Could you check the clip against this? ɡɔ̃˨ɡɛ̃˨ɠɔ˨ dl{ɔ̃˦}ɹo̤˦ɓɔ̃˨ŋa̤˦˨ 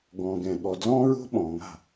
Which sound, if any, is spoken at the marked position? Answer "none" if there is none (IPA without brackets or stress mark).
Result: ɔ̃˦